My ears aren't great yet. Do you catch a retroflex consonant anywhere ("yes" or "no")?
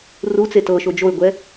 no